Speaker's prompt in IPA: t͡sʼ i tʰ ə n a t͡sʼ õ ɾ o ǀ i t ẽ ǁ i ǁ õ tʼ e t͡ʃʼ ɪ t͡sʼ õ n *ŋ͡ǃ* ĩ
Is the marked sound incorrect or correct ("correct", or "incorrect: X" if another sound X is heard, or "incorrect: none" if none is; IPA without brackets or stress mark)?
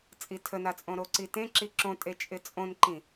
incorrect: ǃ